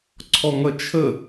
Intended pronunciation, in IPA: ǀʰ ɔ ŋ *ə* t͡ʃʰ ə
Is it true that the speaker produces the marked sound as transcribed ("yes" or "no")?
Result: no